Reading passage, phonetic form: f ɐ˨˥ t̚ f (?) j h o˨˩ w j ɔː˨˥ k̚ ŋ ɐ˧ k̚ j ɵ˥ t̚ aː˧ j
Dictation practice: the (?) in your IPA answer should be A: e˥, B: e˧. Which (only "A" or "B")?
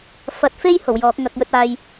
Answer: A